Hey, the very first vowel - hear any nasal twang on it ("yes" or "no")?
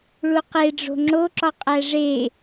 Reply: no